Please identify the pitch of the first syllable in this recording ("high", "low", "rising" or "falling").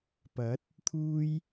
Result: rising